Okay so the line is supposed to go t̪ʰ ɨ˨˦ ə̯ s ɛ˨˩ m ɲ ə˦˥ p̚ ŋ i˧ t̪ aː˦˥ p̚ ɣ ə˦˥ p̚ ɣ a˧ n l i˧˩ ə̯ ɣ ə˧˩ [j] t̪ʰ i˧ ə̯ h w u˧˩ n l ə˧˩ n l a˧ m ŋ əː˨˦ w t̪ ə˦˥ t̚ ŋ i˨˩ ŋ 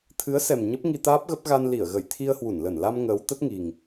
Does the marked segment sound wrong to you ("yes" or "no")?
no